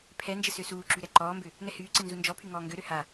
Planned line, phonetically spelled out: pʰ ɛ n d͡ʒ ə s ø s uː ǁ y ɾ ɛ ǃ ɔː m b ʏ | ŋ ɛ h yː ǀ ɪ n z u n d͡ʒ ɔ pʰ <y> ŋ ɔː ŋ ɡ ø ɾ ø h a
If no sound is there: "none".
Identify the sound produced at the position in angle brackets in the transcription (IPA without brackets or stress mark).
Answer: y